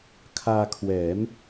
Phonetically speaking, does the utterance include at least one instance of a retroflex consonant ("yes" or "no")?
no